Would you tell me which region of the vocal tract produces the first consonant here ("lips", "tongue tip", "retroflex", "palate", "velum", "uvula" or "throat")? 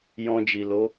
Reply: palate